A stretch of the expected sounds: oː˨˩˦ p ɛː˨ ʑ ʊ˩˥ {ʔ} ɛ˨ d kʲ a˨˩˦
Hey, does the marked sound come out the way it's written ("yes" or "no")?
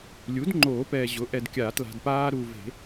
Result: yes